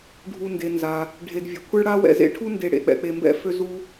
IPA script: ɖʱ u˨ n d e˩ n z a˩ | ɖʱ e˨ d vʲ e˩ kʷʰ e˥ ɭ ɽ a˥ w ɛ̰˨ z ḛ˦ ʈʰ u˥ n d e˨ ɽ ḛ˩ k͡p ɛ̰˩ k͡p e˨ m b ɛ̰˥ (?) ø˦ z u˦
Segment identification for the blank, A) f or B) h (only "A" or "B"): A